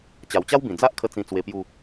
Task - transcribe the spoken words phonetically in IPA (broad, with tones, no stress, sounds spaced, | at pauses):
t͡ɕ a˨˩ w t͡ɕ a˦ w b ĩ˨˩ d͡z a˦ ʔ kʰ ə˧ t͡s ĩ˧ t͡s w e˧ p j u˥˧